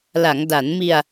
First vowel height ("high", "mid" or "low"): low